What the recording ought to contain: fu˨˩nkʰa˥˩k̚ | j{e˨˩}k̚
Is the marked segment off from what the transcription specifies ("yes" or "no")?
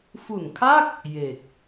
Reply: no